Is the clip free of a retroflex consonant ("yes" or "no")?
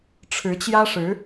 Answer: no